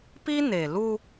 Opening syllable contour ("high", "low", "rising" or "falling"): high